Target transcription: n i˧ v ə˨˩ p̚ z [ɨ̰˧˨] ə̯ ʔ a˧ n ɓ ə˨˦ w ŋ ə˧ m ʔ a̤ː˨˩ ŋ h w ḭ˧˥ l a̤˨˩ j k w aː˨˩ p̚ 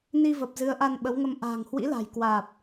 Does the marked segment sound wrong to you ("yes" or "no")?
yes